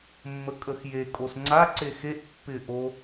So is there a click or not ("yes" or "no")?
yes